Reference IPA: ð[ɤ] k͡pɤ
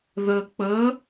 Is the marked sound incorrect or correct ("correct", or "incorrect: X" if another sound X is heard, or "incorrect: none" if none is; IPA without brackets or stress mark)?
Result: correct